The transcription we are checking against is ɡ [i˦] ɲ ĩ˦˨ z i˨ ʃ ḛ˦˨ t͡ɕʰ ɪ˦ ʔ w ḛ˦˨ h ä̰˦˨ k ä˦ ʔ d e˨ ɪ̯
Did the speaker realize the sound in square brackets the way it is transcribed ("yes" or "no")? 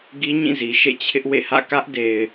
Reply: yes